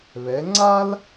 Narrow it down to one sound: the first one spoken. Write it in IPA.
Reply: β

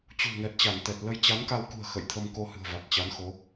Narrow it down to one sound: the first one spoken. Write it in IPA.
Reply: t͡ɕ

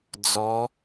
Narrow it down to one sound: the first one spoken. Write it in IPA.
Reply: d͡z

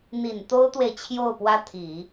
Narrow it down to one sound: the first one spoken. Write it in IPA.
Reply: n̪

